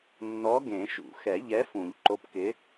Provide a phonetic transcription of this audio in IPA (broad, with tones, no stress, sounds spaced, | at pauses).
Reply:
nː ɔ˨˥ ɡ ẽ˨˩˦ ʃ ṵ˨˩˦ x ɛ˨˩˦ ʎ ɛ˨˥ f ũ˨˩˦ ʎ ǃ o˨˥ p k ɪ˨˥